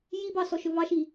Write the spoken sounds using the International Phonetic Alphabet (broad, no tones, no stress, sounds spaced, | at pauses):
j i b ɑ s ɔ ʃ ɵ v ɑ ʃ i